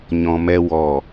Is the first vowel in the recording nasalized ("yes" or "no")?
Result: yes